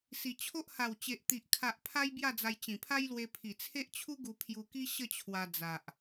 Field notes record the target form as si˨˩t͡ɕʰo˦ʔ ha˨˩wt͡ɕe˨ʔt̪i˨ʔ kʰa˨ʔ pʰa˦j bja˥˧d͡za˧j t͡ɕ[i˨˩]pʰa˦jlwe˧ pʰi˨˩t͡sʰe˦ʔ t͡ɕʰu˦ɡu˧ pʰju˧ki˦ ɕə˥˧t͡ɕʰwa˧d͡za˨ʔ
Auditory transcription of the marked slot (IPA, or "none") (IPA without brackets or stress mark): ĩ˨˩